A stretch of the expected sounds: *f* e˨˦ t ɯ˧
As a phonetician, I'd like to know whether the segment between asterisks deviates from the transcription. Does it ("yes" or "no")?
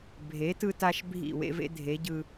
yes